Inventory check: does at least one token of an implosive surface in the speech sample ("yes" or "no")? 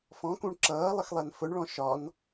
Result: no